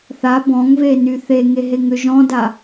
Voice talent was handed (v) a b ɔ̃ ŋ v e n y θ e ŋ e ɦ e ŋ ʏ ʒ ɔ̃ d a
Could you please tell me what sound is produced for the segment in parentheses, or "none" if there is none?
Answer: θ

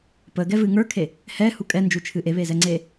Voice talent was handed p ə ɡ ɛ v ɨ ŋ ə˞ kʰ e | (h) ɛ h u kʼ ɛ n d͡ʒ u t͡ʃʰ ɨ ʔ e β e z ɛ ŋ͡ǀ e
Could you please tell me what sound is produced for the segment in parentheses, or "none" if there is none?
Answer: h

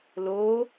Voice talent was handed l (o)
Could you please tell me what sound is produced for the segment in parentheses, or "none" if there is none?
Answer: o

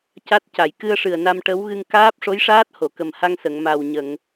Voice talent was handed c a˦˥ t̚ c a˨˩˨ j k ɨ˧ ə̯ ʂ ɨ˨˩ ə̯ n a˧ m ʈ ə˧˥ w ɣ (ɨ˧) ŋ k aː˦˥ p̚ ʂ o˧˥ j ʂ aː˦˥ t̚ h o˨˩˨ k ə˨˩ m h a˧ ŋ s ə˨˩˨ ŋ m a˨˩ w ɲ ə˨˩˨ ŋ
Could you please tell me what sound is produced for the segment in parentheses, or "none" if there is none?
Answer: ɨ˧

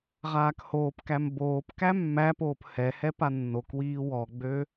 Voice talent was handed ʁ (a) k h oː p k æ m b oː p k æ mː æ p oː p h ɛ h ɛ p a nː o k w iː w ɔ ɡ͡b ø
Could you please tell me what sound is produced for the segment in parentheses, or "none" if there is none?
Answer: aː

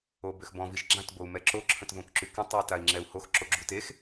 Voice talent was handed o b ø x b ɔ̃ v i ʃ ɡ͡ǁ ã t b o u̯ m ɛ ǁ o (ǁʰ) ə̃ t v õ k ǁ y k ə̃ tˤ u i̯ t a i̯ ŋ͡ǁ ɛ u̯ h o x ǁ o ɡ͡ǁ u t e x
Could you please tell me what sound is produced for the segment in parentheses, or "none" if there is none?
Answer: ǁʰ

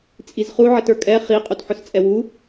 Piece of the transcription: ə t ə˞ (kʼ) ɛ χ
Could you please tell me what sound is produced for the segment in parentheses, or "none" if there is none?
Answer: kʼ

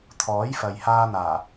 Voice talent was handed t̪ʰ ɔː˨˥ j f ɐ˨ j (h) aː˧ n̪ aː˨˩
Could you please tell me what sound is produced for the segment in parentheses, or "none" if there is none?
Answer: h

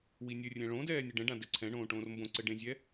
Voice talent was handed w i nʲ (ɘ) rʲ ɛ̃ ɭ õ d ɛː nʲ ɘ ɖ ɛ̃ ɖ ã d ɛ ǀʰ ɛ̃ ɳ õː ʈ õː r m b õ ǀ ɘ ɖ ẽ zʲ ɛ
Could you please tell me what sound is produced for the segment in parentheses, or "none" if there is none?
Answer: ɘ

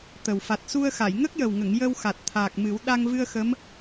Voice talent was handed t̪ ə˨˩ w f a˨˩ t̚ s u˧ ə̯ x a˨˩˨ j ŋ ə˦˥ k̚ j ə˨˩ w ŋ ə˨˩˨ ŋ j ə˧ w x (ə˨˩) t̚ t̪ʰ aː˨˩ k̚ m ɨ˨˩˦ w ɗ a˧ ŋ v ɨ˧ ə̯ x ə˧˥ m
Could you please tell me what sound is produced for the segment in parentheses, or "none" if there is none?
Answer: a˨˩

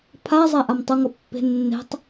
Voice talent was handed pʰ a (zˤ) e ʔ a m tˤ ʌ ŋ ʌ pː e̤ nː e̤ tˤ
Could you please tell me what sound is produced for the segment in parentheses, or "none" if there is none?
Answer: zˤ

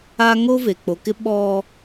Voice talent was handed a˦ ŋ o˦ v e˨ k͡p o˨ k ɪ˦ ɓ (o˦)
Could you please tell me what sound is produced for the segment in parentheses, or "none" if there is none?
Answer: ɔ˦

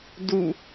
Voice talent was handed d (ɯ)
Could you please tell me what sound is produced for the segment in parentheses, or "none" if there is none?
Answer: u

